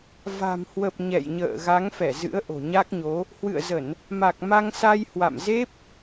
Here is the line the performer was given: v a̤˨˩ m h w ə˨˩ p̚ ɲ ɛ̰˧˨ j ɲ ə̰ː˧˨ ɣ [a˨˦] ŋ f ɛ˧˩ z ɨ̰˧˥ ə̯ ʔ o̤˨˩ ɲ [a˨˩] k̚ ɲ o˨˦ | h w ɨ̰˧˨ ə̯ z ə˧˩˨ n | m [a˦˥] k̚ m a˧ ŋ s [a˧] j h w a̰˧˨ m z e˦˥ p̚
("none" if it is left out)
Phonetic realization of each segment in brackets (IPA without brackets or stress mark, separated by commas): a˨˦, a˦˥, a˨˩, a˧